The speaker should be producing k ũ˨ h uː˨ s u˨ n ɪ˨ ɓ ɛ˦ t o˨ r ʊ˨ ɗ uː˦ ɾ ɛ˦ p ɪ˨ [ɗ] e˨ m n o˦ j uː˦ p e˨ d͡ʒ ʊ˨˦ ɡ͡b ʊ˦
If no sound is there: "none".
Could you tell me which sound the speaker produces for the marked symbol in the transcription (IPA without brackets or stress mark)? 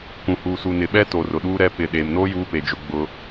ɗ